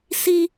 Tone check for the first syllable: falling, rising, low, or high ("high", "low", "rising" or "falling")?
high